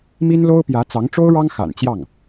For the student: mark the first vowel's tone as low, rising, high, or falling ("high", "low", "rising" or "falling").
high